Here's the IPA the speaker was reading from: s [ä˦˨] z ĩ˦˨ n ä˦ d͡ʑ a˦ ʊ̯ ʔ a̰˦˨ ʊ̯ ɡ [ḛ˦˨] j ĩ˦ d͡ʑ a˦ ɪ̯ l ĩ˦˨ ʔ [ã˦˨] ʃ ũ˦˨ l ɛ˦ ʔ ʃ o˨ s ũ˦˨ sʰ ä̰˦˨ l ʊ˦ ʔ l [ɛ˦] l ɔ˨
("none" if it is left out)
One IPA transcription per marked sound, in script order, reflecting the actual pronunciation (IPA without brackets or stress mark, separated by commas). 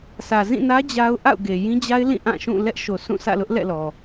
ä˨, e˨, ã˦˨, ɛ̰˦˨